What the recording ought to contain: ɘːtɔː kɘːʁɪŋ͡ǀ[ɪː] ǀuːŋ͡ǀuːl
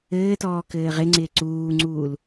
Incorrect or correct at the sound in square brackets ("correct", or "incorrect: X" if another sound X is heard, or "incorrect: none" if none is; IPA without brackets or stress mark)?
correct